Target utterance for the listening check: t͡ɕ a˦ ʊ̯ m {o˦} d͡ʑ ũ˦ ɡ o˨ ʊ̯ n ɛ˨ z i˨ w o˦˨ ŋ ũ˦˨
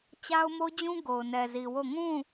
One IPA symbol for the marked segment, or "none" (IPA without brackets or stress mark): o˦